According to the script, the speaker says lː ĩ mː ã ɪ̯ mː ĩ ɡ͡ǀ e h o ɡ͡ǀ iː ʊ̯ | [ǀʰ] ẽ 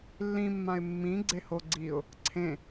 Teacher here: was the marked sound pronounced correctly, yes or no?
yes